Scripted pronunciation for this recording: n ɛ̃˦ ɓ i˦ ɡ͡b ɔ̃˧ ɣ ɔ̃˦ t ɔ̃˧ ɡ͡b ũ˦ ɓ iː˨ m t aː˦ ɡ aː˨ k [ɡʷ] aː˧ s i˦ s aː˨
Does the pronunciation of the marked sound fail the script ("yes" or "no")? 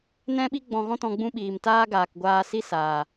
no